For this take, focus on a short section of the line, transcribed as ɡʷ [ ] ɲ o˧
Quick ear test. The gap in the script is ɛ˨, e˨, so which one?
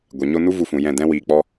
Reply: ɛ˨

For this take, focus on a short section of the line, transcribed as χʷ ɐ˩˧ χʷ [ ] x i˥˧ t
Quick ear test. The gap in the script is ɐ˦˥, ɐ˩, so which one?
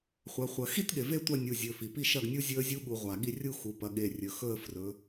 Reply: ɐ˩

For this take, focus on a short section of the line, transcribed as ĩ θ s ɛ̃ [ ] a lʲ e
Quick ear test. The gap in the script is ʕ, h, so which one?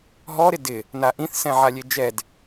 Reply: ʕ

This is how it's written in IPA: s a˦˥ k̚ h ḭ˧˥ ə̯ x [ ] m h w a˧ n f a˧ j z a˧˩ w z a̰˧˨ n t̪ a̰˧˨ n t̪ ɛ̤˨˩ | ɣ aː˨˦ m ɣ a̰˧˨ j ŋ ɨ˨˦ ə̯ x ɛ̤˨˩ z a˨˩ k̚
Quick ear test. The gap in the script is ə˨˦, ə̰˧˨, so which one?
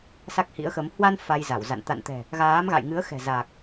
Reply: ə˨˦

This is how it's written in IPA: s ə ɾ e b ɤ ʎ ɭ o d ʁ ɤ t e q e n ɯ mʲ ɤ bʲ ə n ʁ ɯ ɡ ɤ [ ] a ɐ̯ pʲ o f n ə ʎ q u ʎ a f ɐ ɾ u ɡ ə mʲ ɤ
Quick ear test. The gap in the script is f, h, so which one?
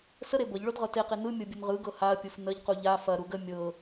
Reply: h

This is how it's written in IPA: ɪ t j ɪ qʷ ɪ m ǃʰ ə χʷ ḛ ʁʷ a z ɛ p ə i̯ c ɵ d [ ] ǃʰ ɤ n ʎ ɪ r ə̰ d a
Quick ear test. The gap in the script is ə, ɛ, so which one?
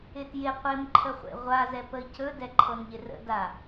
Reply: ɛ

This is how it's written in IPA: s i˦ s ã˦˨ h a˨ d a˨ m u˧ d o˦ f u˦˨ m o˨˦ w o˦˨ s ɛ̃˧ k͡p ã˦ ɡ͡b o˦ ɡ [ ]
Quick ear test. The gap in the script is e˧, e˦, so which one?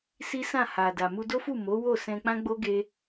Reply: e˧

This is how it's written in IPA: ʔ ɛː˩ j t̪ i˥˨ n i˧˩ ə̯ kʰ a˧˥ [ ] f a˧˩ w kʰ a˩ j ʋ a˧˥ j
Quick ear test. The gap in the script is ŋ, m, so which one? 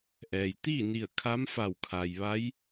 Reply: m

